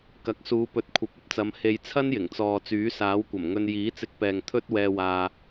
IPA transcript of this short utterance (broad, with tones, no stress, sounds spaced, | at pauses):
k ɐ˨˥ k̚ s uː˨˧ p ɵ˨˥ t̚ kʷʰ ɐ˨˥ p̚ ɐ˥ p̚ t͡s ɐ˨˧ m h e˧ j t͡sʰ ɐ˥ n j ɪ˨˩ ŋ t͡s ɔː˨ t͡s yː˨˥ s aː˨˥ w kʷ ɐ˨˩ m ŋ ɵ˧ n j iː˨˥ t͡s ɪ˧ k̚ p ɛː˨ ŋ t̪ʰ ɵ˥ t̚ w ɛː˧ w aː˧